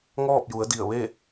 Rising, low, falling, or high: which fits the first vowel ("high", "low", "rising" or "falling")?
falling